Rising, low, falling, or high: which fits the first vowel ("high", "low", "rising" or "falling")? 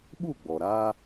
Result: falling